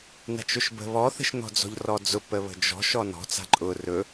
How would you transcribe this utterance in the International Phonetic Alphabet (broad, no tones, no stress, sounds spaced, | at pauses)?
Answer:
n a̤ t͡ʃ ʊ ʃ b ə̤ β ɔ θ ə̤ ʃ n ɔ̤ d͡z ɔ̤ ʎ r ɔ d͡z ʊ p ə β ə̤ d͡ʒ ɔ̤ ʃ ɔ n ɔ̤ t͡s a̤ ǃʼ ʊ r ɵ